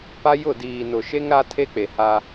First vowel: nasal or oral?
oral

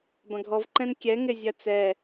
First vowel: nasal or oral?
nasal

